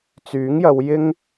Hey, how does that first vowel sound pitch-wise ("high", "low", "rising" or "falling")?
rising